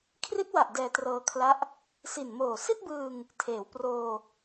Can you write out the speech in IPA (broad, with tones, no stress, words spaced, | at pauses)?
kʰri˦˥t̚wa˨˩ʔ dɛː˧trɤː˧kʰla˦˥ʔ | si˨˩nmoː˨˩ si˥˩t̚bɯː˧ŋ | tʰeː˩˦w proː˧